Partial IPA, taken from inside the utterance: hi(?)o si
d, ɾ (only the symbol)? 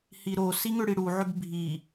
ɾ